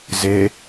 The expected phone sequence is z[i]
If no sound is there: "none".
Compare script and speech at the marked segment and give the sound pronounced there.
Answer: e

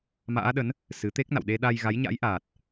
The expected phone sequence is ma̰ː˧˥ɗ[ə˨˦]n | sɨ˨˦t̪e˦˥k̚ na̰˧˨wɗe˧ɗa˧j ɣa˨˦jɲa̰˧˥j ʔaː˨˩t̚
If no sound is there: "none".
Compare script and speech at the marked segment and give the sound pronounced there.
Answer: ə˨˦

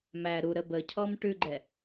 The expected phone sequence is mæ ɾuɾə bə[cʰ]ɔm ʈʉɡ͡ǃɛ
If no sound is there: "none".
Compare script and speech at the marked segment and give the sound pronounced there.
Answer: cʰ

